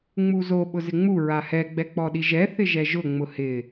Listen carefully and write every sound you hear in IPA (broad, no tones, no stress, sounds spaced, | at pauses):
ŋ͡m u z o ɓ ʊ z ɪ ŋ͡m u ɹ a h ɛ ɡ͡b ɛ k͡p ɔ ɗ i ʒ ɛ θ ɪ ʒ ɛ ʒ ʊ ŋ͡m ʊ h ɪ